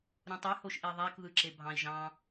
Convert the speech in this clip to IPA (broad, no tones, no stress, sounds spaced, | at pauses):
ɾ ũ tˤ y h o ʃ ʔ i ðˤ æ k ð ɯ ǁ e bʱ ɑ̃ i̯ ʒ ɑ̃